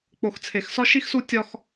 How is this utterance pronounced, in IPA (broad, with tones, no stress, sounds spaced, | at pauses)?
k͡p o˨ x t͡sʰ e˨ x s ɒ˦ ʃ i˦ x s u˦ tʲ ɒ˦ x